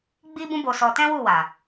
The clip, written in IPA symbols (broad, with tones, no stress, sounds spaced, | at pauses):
ɡ͡b i˦ b ũ˦ b o˧ s ɔ˧ t ɛ̃˦ w u˦˨ w a˨